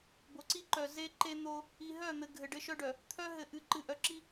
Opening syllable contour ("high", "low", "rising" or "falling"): low